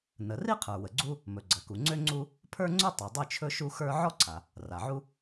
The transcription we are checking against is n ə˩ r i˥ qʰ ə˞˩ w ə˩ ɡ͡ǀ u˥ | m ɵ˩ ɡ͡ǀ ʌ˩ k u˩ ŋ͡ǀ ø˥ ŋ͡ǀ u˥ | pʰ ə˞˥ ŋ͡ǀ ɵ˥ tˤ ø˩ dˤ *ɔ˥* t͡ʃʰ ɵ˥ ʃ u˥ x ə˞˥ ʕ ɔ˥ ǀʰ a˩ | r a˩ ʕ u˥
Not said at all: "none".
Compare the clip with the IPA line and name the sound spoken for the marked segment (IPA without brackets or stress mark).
ɵ˥